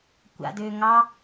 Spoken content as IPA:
kʷ a̰ d ʏː ŋ ɑ

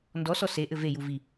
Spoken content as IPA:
n d ɔ s ɔ s e ʔ ɘ v e j u v i

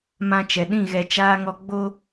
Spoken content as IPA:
m ã˧ t͡ʃ ɛ˨ ɗ ĩ˦˨ ɣ ɛ˨ t͡ʃ aː˧ ŋ ɔ˧ ɡ͡b o˦

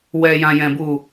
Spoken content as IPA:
w ɛ˨ j ã˨ j ɛ̃˨ b u˨

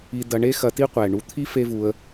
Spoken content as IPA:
i˧ d ɐ˧ ɳ e˦ x ɐ˧ t i˦ qʷ ɛ˨ ɳ u˧ t̪ʰ i˦ f e˦ v u˧ ə̯

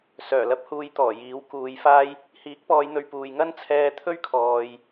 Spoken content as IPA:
s œː˨˩ l ɐ˧ p̚ h uː˨˧ j t̪ ɔː˨˩ j iː˨˥ w k uː˨˧ j f aː˥ j | h iː˨˥ k̚ p ɔː˨˧ j n̪ ɵ˨˧ ɥ p uː˨ j ŋ ɐ˥ n t͡sʰ ɛː˧ t̪ʰ ɵ˥ ɥ kʰ ɔː˨ j

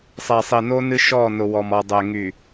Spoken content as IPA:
sˤ ɛ˨ sˤ i˨ n o˦ n ɨ˦ ʃ ɔ˦˨ n ʊ˨ w ɔ˨ m ɔ˨ dˤ ɛ˨ ŋ y˨

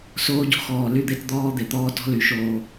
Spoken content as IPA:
s oː˦ ɟ o̤˦ x ɔː˨ l y˦ d̪ e˦ t d̪ ɔː˦ d̪ e˨ t̪ ɔː˦ t ɔ̤˦ l y˨ ʃ oː˦

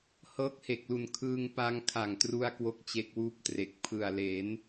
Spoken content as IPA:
h ɤː˦˥ k̚ h e˨˩ k̚ l u˨˩ n kʰ ɯː˧ ŋ p a˧ ŋ kʰ a˨˩ ŋ t r u˧ a̯ k w o˥˩ k̚ t͡ɕ e˦˥ k̚ w uː˥˩ p̚ t r e˨˩ k̚ pʰ ɯ˨˩ a̯ l e˩˦ n

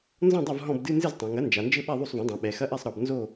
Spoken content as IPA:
n z ɔ̃˥˨ dˤ ɐ˥˨ v ɦ ɔ̃˥˨ b d ɨ˧˥˧ n z ɨ˥˨ z tˤ ã˩˧ ŋ ɐ˩˥ n d͡ʒ a˩˧ n d͡ʒ ɘ˥˨ ɓ ɛ˥˨ ðˤ u˥˨ sˤ v ɔ̃˩˥ dˤ ã˩˧ ɓ ɛ˩˧ x ɐ˧˥˧ ʔ ɛ˥˨ sˤ ɾ ɔ˩˧ b n z o˥˨

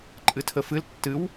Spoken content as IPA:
ǃʼ ɨ tʰ ə f ɨ l tː ɨ w

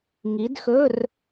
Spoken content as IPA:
ŋ i˨˦ d x ɵ˧˥˧ r

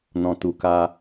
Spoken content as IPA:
n ɔ̃˨ t u˨ k a˧

